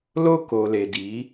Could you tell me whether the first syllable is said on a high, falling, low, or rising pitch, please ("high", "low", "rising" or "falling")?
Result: high